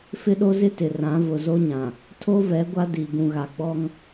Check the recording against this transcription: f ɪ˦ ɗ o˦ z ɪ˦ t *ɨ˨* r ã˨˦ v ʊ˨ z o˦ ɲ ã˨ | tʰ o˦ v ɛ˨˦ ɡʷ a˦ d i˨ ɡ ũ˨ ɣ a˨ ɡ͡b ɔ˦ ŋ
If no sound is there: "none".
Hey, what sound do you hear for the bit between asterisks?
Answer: ɪ˨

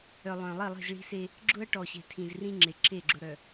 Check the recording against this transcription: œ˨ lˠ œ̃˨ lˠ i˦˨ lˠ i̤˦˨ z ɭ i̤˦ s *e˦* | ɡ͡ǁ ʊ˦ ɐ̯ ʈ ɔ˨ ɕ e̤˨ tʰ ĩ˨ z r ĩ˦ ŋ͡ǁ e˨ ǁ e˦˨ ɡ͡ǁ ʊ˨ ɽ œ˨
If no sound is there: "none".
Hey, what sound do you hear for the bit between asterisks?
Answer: e˦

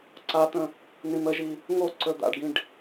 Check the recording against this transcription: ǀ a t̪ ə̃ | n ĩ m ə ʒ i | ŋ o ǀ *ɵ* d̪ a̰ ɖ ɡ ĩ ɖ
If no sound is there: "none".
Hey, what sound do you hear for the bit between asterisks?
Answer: ɵ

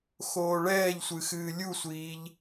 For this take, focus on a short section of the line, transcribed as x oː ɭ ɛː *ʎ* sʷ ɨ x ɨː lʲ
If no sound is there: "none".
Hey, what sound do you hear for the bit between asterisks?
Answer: ʎ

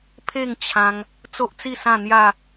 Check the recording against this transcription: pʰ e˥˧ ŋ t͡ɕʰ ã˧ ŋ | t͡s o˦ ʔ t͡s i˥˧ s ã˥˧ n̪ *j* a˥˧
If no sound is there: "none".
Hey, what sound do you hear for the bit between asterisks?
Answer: j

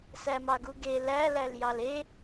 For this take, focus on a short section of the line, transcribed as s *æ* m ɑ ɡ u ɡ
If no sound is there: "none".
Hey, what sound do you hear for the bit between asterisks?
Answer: æ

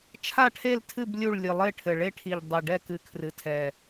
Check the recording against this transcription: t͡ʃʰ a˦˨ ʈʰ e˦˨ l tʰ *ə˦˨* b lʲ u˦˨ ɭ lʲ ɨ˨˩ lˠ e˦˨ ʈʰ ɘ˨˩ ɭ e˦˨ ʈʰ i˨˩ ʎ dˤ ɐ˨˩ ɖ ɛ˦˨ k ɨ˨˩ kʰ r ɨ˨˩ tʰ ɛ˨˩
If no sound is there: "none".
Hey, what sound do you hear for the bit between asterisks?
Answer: ɨ˦˨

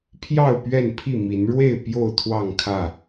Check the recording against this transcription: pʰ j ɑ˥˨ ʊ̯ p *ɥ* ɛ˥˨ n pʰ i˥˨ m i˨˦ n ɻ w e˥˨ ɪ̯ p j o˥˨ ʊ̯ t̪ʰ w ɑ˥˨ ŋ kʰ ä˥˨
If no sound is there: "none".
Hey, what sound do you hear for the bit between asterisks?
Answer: ɥ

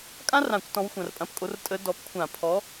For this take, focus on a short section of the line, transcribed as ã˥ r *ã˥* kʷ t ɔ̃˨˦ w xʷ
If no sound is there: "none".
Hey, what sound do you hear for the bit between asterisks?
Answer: ã˧˩˧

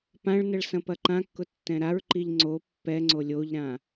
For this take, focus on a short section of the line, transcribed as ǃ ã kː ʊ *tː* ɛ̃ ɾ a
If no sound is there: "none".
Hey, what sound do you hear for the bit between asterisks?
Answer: tː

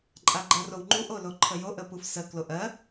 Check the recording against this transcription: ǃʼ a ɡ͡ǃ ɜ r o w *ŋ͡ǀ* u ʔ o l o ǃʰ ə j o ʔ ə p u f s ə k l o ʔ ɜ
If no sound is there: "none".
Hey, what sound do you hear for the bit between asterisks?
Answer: ŋ͡ǃ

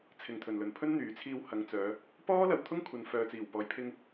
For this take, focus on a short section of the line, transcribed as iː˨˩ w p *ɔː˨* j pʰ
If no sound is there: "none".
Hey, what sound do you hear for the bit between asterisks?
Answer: ɔː˨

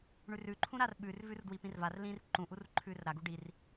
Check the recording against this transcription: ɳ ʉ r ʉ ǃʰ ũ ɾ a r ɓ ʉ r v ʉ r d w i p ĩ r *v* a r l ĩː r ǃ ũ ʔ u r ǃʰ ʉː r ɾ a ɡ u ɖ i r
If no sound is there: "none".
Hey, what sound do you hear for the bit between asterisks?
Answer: v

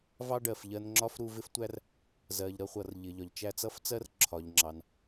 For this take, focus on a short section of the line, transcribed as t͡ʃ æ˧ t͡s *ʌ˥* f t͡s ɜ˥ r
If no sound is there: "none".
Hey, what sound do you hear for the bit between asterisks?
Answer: ʌ˥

